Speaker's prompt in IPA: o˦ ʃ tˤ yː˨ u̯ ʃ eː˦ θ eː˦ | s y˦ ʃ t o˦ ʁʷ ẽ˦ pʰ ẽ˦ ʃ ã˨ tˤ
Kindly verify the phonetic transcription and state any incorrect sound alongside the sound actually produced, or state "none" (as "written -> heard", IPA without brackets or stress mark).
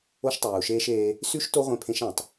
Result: θ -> ʃ